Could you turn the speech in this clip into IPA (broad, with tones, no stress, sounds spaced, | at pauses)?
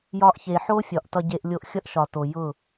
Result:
j ɒ˧ ʔ ç e˨ ħ o˦ fʲ ɒ˨ ʔ t ʌ˧ ɟ e˧ ʔ lʲ o˧ ʔ xʲ ʌ˦ ʔ ʃ ɒ˨ t o˨ j ʊ˦˨